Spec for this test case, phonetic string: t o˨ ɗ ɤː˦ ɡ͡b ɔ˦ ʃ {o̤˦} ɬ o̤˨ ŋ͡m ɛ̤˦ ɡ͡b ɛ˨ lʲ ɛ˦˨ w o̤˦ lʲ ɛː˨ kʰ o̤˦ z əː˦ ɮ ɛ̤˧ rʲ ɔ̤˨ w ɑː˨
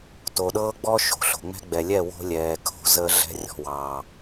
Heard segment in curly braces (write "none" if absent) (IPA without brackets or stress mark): o̤˨